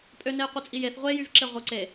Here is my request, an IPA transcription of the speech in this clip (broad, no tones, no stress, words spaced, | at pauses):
pʼønejqʷɯt͡sʼi jeθ ʁʷejyvǁe ʁʷɯ ǀe